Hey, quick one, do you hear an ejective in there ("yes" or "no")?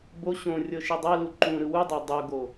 no